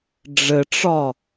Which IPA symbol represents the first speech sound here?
ɖ͡ʐ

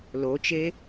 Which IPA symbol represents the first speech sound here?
l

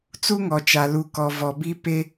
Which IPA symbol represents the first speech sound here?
t͡s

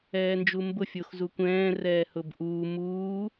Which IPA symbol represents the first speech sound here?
ɛː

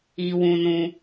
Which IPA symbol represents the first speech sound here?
i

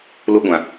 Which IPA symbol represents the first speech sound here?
l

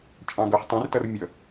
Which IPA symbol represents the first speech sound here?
t͡ʃʼ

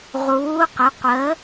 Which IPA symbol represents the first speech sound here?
ʁ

